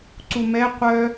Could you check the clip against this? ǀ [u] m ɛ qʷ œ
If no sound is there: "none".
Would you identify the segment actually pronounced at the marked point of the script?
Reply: u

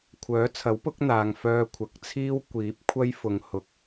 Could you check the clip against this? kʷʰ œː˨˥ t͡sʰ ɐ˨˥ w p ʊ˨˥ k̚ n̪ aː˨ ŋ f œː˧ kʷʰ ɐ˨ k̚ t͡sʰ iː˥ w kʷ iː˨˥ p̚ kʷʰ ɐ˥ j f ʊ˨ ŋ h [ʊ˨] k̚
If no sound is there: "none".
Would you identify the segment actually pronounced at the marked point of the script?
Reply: ʊ˨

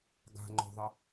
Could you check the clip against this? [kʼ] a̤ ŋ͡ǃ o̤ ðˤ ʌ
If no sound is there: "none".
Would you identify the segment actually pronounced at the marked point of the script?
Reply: ɡ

